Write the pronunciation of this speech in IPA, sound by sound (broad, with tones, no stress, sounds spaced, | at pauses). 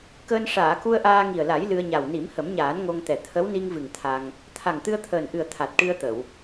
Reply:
k əː˧ n ʂ aː˨˩˨ k u˧ ə̯ ʔ aː˧ ŋ i˨˩ ə̯ l a˨˩˦ j l ɨ˧ ə̯ ɲ a˨˩ w n i˨˩˦ m h ə˨˩˦ m ɲ aː˨˩˦ n ŋ o˧ ŋ t̪ ɛ˨˩ t̪ʰ ə˧˥ w n i˧ ŋ v ɨ˨˩ ŋ t̪ʰ a˧ ŋ | t̪ʰ a˨˩ ŋ t̪ ɨ˧ ə̯ t̪ʰ əː˨˩ n ʔ ɨ˨˩ ə̯ t̪ʰ a˨˩ t̚ ʈ ɨ˧ ə̯ t̪ ə˨˩˨ w